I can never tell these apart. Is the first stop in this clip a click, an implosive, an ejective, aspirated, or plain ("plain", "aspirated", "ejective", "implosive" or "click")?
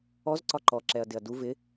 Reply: click